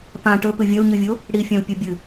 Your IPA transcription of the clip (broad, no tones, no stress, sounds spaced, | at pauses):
p ã ʈ ɵ p ɨ vʲ ɐ u̯ ɲ ɨ vʲ o | ɽ i fʲ ã u̯ pʲ u bʲ ɨ